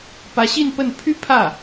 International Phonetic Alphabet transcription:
pä˧˥ɕi˥˧npə˥˩n pʰy˥ pʰä˥˩

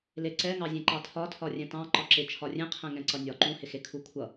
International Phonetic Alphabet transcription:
leǀɛŋɑzʲẽ ǃɑtʰɒtʰɒ rʲɛ̃tɑ̃ ǃɒǁɪ t͡ʃʰɒrʲẽ qʰɛ̃ŋɛ̃ǀʌnʲɒ ǃũhɪxe kʰukʷʰʌ

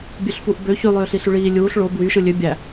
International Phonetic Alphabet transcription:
bʲøɬfuʔbø çylˠøːɬiɬy ɭiː lʲuːɬ ɭo bwyʃɯ lʲø bʲæ

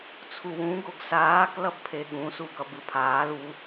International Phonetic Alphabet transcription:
t͡sʰuwũ ɡoɡsaːk lʌbpʰeɠũ suɡʌbɯpʰaːl u

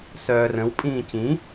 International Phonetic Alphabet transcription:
sœːrə̃w pʼĩːcĩ

